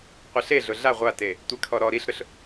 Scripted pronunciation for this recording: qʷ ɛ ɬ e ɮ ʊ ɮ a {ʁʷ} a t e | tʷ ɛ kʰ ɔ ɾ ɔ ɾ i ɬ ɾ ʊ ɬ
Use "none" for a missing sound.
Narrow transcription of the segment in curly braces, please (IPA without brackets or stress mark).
ʁʷ